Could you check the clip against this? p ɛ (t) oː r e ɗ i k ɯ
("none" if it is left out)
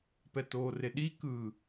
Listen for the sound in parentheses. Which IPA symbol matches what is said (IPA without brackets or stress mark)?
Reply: t